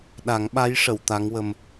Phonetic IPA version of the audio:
ɗ a˨˩˦ ŋ ɓ a˧˥ j ʂ ə˨˩˨ w t̪ a˧˥ ŋ w ə˧ m

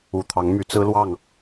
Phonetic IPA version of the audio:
u˨˩ t̪ʰ ɑ˨˦ ŋ m y˨˦ t͡s ɹ̩˦ l w ɑ˥˨ ŋ

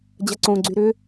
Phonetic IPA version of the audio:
d͡ʑ ɐ ǀ õ ɡ͡ǀ y ɾ ʏ

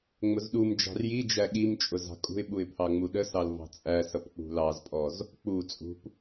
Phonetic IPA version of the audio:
ŋ͡m ʊ z ɗ u m d͡ʒ ɑ̤ r j i d͡ʒ æ ɠ i m t͡ʃʼ ʊ z ɑ̤ kʼ ṳ ɪ̯ ɓ u ɪ̯ pʰ ɑ ŋ͡m u ɗ ə s ɑ l v ɑ̤ t͡sʼ æ s ʌ p k͡p ṳ l ɑ z pʼ ɔ z | k͡p u t͡sʼ ṳ p

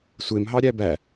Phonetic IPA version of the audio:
sʷ e m ɦ ɑ ɾʲ æ b æ

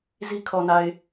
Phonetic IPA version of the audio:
z i˦ kʰ ɔ˨ n a˨ ɪ̯

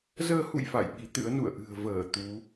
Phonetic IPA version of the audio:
z əː˧ h ṵ˧˨ j f a̰˧˨ j ɓ i˨˦ t̪ ɨ̰˧˥ ə̯ n ṵ˧˨ ə̯ ʔ ɨ̤˨˩ ə̯ v əː˧˩ t̪ u˨˦

